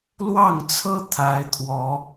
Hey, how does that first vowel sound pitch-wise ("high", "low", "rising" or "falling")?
falling